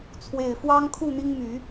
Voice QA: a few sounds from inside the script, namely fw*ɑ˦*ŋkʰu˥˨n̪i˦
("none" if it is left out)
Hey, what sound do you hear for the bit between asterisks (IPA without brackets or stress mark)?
ɑ˦